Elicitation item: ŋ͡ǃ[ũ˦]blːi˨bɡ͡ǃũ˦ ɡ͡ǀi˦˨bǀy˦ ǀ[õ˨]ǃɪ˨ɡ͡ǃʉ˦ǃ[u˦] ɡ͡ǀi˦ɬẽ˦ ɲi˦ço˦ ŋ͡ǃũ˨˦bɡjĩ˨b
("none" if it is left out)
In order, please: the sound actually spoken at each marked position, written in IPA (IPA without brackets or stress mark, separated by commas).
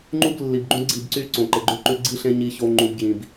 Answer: u˦, õ˨, ʉ˦